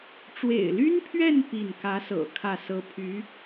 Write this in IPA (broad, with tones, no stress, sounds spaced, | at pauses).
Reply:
ʈ͡ʂ w ḛ˨˩ ɪ̯ l y˥ n pʰ ɥ ɛ˥˧ n p i˥˩ n k ä˧˥ s ɤ̰˨˩ kʰ ä˥˩ s ɤ˥ pʰ y˧˥